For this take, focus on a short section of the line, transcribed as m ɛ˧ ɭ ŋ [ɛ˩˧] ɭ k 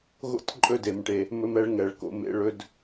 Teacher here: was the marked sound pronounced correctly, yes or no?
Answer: yes